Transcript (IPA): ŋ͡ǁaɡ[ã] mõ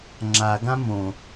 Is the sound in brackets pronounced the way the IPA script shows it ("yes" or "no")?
yes